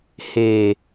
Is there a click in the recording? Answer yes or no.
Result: no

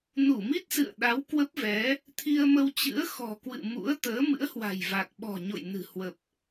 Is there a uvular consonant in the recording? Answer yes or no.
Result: no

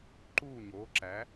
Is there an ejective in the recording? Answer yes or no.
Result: no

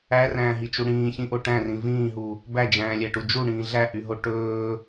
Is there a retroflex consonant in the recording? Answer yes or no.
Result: yes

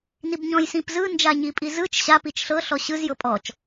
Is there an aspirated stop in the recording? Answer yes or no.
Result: no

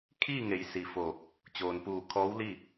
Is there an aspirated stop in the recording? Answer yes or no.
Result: yes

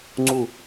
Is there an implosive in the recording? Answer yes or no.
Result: no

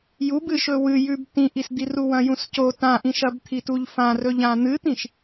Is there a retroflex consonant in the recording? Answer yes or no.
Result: no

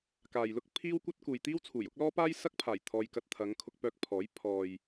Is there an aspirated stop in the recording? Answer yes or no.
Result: yes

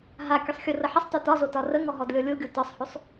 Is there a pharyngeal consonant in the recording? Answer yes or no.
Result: yes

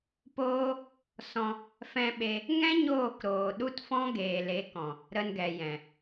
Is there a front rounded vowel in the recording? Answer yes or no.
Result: no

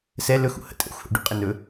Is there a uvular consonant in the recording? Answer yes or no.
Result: yes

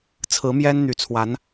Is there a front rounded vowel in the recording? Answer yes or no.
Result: yes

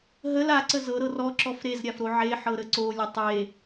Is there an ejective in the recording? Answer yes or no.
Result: no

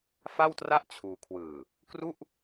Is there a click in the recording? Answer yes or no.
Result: no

